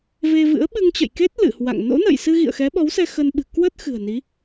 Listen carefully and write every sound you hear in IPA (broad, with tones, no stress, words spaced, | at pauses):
ve˧vɨ̰˧˥ə̯ ɓɨ˧ŋt͡ɕə̰˧˨jke˦˥t̚ lɨ̰˧˨hwa̰˧˨ŋ no̰˧˥nə̰ː˧˨jsɨ˧ ɣḭ˧˨ə̯xɛ˨˦ɓɔ˨˦wsɛ˧ xə˧nɓɨ̤˨˩ kwə˦˥t̚ xɨ̤˨˩ə̯ni˨˦